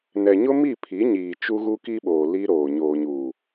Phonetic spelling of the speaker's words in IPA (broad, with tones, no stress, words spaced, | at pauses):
nɛ˨ɲʊ˦ mi˦˨pʰi˨˦ ɲiː˨t͡ʃu˦ ɣu˦ki˦ɓoː˨ li˦ɾoː˨ ɲoː˨ɲuː˨